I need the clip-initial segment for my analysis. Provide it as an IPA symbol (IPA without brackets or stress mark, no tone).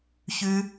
ç